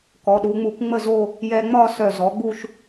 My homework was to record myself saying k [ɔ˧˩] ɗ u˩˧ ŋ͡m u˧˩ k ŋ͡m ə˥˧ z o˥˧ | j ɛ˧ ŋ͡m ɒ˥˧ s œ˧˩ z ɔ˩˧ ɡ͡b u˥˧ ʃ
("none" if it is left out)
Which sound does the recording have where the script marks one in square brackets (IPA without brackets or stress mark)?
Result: ɔ˩˧